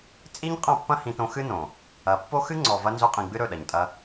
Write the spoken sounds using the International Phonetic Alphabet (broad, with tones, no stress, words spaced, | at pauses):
t͡sʼi˦ɲ qʼɐ̃˦˨pːɐ̃˦hĩ˧tõ˧ xɨ˦nõ˨ | ɐ˧ pːo˦xɨ˦ŋ͡ǀɔ˨ vɐ˧nzɵ˧qʼĩ˨ ɡ͡bɨ˦ɾɵ˦˨ɗɐ˨ɲtʼɐ˧